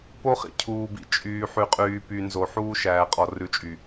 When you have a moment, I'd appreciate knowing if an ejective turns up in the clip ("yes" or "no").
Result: yes